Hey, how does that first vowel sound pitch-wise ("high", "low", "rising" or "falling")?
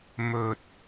low